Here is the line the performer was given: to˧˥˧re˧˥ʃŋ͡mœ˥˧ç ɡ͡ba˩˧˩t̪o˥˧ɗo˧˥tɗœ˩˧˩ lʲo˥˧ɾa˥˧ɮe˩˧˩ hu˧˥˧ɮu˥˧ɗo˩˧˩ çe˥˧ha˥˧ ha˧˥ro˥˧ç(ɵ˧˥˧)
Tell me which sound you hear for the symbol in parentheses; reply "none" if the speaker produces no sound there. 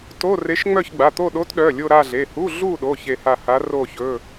ɵ˧˥˧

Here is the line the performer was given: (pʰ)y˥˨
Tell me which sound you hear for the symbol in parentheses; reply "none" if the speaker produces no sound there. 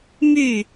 m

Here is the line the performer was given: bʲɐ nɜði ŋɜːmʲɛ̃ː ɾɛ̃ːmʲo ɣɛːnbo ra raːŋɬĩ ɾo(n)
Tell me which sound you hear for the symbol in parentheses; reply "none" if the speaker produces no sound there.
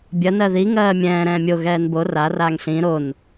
n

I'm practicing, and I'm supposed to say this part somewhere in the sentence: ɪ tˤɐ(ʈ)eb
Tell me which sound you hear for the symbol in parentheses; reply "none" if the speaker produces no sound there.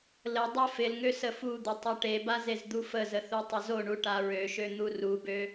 ʈ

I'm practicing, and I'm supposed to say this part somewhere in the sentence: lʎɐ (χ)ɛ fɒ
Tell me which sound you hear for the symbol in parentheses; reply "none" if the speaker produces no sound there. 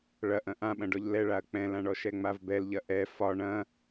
ʔ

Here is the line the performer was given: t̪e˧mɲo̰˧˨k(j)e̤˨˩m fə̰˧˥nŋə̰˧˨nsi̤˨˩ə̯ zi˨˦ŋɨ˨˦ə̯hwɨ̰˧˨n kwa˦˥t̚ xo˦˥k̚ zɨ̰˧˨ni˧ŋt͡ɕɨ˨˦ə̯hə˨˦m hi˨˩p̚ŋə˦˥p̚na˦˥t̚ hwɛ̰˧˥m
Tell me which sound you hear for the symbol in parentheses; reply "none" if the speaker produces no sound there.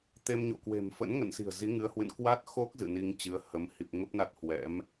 w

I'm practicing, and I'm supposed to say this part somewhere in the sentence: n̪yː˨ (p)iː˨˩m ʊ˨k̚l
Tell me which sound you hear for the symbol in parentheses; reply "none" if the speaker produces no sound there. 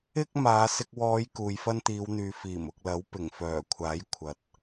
f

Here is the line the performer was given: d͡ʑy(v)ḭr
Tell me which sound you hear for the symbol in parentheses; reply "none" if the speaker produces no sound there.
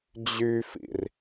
f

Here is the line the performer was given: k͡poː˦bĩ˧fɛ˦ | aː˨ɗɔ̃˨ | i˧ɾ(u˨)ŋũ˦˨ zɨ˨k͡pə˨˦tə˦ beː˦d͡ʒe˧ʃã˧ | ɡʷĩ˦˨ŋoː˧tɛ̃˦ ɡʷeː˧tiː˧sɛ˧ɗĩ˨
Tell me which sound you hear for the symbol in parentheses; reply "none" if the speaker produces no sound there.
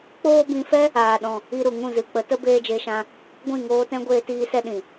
u˨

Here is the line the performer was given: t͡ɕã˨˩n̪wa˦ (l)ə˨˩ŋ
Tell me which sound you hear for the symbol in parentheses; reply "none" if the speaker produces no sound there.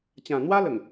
l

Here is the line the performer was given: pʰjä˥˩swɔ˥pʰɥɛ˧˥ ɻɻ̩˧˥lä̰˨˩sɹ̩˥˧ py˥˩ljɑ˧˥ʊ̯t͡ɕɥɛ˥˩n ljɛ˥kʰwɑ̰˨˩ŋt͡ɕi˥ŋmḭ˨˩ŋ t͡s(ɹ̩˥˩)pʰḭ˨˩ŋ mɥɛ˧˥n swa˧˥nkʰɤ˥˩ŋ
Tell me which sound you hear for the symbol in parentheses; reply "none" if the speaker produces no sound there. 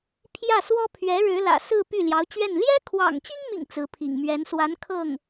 ɹ̩˧˥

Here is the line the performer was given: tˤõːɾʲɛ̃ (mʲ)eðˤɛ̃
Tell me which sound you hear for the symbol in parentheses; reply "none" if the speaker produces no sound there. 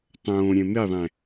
m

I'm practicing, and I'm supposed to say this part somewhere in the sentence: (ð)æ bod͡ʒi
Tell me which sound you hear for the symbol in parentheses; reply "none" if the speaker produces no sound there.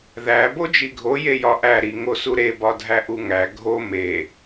ð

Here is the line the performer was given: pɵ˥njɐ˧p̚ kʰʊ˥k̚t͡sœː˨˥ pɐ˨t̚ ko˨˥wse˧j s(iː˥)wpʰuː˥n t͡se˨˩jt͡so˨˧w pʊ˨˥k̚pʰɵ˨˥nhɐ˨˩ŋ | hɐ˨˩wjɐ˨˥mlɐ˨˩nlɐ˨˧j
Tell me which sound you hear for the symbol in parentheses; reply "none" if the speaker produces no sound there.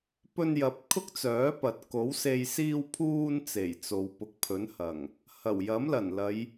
iː˥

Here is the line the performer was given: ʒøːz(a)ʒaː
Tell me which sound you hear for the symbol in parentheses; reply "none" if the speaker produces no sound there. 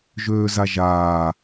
a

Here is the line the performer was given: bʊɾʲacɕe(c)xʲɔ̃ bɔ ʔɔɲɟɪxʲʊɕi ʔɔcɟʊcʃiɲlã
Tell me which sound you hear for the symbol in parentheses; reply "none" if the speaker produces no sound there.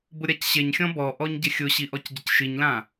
ɲ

